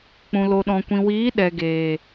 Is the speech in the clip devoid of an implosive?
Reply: no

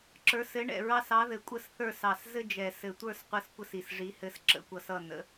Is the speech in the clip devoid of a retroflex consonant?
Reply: no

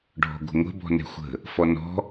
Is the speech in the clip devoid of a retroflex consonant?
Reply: no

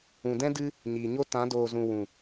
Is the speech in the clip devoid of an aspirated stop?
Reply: yes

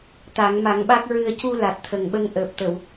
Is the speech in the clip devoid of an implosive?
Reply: no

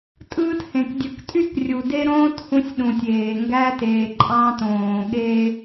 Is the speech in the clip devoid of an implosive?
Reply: no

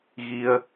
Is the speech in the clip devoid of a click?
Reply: yes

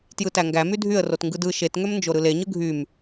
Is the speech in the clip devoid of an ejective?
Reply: yes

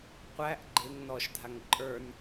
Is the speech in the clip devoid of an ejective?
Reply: no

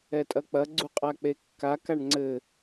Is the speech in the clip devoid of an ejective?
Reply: no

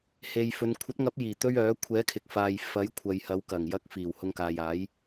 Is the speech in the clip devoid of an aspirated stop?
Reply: no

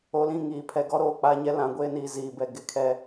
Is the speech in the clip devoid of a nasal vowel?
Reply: no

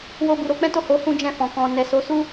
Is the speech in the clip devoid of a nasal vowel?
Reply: no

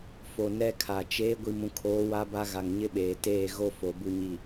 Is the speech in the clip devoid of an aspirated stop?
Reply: no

